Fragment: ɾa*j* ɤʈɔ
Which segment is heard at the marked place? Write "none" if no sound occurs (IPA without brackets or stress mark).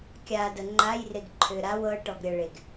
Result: w